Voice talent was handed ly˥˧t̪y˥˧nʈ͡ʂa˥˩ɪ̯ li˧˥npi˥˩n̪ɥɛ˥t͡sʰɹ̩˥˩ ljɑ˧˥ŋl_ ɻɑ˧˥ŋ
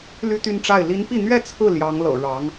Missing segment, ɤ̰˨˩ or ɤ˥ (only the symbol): ɤ̰˨˩